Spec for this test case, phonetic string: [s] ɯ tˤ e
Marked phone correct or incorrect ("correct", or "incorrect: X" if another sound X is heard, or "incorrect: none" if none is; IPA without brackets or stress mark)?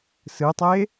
correct